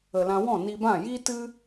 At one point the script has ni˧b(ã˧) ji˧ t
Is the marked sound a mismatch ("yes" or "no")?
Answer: yes